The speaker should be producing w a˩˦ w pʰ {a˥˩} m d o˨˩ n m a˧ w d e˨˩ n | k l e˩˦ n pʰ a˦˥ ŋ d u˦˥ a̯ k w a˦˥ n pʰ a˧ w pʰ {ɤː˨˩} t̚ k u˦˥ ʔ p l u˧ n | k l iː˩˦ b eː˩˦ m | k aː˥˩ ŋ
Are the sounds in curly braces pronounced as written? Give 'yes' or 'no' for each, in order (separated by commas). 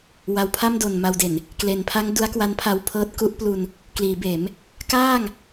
yes, no